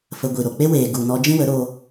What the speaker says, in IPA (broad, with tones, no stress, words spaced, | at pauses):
fə˧ɡʷi˨ɾo˨ k͡pe˦weː˨ ɡu˨ nɔ˧d͡ʒĩ˦ wə˨˦ɾoː˧